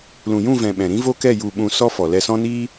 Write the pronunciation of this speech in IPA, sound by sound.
l ũ˨ j ũ˦˨ v ɛ̃˨ ɓ ɛ̃˨ ɾ ĩ˦ v o˦ k ɛ˦˨ j u˨ ɓ ũ˨ s ɔ˧ f ɔ˨ l ɛ˧ s ɔ̃˦ n iː˦

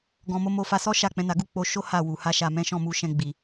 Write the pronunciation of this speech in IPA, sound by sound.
ɡ ɔ̃˨ m o˨˦ m o˧ f a˧ s ɔ˦ ʃ a˦˨ k͡p ɛ̃˨˦ n a˧ ɡ u˦ k͡p o˧ ʃ o˦ h a˦˨ w u˨ h a˧ ʃ a˨ m ɛ̃˨˦ ʃ ɔ̃˦˨ m u˧ ʃ ɛ̃˧ ɡ͡b i˨

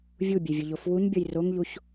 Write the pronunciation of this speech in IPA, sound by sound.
vʲ u bʲ e vʲ ʊ ʎ o f w u ɲ bʲ ʌ j r o ŋ ʎ u ç

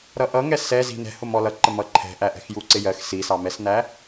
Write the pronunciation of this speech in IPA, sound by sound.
ɾ ʌ ʔ ʌ ŋ ɛ s ɛ z i̤ n ɛ̤ h ʊ m ɔ l ʌ ǃ ə m ʌ ǃʰ ɛ̤ ʔ æ ʔ ɛ̤ x j u ǀ ɪ j ɜ x s i s ɑ m ɛ s n æ

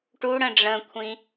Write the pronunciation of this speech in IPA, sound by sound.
ʈ u ɽ ə̃ ɖ͡ʐ ə̃ kʷʰ ĩ

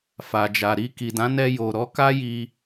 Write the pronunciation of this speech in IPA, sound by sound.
f a˨ d͡ʒ a˨ ɾ i˧ k i˨ d ã˨˦ n ɛ˧ j o˨ ɾ ɔ˨˦ k a˦ j i˧

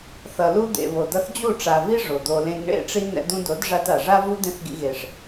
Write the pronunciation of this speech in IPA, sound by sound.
θ ʌ˨ l u˧ d̪ ḛ˨ β o˨ d ʌ˧ θ d͡ʑ u˦˨ ʈ͡ʂ a˨ v i˦ ʐ o˨ d̪ o˧ l ẽ˦ ɡ ɳ ḛ˦˨ ʈ͡ʂ i˧ n̪ ɛ̰˧ d̪ ũ˧ d o˨˦ d ʐ a˧ t a˨ ʐ a˦ v u˦ d̪ ẽ˦ θ ɡ ḭ˧ ɣ e˨ ʂ

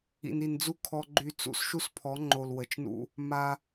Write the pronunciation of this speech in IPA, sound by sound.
ḭ˨ n i˨ n d͡z u˦ kʰ ɔ˦ ɡ͡ǃ y˦ t͡s ṵ˦ s ʃ u˦ s pʰ ɔ˨˦ ŋ͡ǃ o˨ l w ə˨ t͡ʃ n ṵ˦ | m a˦

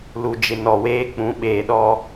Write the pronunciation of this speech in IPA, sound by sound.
l u˨ d͡ʒ ɪ˨ n ɔ˨ w eː˦ k͡p ũ˨˦ ɓ eː˨ ɗ ɔ˦

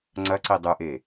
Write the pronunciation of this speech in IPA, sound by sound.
ŋ͡ǀ ɐ ǀ i dˤ ʉ ʔ e

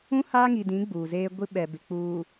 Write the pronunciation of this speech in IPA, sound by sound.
ũ˦ h aː˦ ŋ i˨ d ĩ˨˦ ɡ͡b uː˨ z eː˦ ɡʷ i˦ ɓ ɛ˨ b ɪ˨ k͡p uː˨

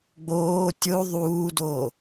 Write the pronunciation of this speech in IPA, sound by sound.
ɡ͡b oː tʲ o ðˤ uː d o

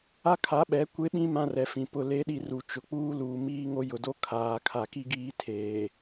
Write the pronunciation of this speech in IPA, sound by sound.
a˦ kʰ a˨˦ ɓ ɛ˨˦ kʷ e˦ ɓ ĩ˦ m ã˦ r ɛ˨ f ĩ˨ p ʊ˨ l e˨˦ ɗ i˨ r u˨ t͡ʃ ʊ˨ k͡p uː˦ l uː˨ m iː˦ ŋ o˦ j ʊ˨ d o˦ kʰ aː˨ kʰ a˨ k i˦ ɡ iː˦ tʰ eː˨

